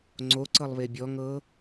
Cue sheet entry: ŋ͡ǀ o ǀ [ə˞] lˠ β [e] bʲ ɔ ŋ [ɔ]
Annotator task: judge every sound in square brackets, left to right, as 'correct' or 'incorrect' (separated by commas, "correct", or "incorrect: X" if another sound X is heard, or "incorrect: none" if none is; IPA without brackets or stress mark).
incorrect: ɤ, correct, incorrect: ɤ